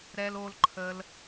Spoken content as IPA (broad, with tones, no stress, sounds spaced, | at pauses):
ɾ ɛː˧ l oː˧ l ǃʰ əː˧ l